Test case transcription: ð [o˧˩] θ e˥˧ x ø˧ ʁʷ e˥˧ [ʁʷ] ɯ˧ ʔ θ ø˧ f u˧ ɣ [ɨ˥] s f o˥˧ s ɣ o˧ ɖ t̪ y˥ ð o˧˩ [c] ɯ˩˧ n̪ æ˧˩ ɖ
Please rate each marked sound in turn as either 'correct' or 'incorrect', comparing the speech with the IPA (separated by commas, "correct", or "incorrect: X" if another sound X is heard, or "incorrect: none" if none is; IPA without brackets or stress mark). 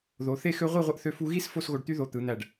incorrect: o˩˧, correct, incorrect: i˥, incorrect: t̪